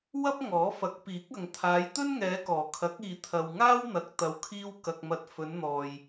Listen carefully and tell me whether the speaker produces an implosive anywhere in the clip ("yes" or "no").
no